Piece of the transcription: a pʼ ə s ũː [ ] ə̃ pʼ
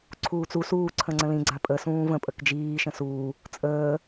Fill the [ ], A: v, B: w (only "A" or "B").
A